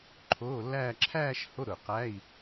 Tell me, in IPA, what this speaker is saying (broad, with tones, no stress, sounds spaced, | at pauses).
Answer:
ǃʰ oː˧˥˧ lː æː˥˧ ǁʰ æː˥˧ ʃ h o˧˥˧ ɾ ʊ˨˩ q æ˧˥˧ i̯